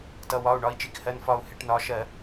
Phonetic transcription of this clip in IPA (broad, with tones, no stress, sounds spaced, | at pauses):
t ʌ˩˧˩ w ɒ˩˧˩ u̯ ɳ ɒ˩˧˩ i̯ t͡ʃ i˧˩ k h ɜ˩˧˩ n f ɒ˧˩ u̯ h ɪ˧˩˧ ʈ n ɒ˩˧˩ ʃ ɜ˧˩˧